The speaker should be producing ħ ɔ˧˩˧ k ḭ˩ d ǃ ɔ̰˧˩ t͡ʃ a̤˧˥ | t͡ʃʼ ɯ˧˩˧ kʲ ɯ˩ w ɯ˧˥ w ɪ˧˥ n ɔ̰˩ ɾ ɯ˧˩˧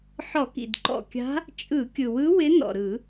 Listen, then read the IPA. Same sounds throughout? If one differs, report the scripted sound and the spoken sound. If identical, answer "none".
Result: t͡ʃ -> kʲ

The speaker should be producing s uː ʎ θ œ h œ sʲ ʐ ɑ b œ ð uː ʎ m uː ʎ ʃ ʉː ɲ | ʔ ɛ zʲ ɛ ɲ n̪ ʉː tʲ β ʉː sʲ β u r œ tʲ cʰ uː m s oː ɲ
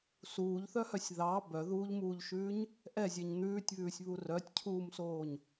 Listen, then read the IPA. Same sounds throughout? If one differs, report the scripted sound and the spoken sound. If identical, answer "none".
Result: ʐ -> ð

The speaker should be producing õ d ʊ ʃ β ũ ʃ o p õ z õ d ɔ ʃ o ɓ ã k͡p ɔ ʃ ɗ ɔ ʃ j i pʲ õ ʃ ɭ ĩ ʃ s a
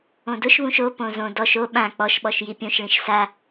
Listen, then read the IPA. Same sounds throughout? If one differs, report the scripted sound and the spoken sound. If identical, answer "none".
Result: ɗ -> ɓ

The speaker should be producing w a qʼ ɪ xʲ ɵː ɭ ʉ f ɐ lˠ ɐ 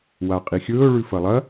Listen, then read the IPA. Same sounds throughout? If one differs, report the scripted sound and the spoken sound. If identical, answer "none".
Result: ɪ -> i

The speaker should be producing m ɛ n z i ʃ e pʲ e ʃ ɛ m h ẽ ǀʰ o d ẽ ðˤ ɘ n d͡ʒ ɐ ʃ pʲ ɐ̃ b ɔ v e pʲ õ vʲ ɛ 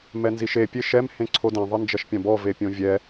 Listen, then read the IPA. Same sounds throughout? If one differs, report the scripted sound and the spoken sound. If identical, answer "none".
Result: none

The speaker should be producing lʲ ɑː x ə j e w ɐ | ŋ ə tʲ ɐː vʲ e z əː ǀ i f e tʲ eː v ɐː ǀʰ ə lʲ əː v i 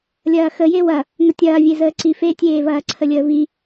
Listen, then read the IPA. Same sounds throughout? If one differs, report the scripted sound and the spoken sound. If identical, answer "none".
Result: ɑː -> ɐː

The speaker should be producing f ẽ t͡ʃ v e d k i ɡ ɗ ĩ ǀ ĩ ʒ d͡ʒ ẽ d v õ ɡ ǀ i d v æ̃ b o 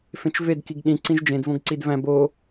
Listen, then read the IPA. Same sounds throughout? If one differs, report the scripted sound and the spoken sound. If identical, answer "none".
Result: none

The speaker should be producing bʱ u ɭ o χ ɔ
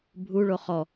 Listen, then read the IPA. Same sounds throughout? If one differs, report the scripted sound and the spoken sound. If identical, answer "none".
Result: none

